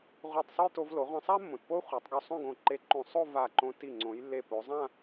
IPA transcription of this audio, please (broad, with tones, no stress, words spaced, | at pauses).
ʁʷi˧˩tˤsˤu˥˧j to˧vlo˩˧ ʁʷã˧sˤa˥ mːõ˩˧tpo˥χʷa˩˧tˤɡo˧ sˤõ˥˧ɡõ˧˩ ǃe˧ǃõ˧˩ sˤo˥˧ va˧˩ ǃõ˧ti˧˩ ŋ͡ǀõ˩˧jlːe˧˩po˩˧ zˤã˥˧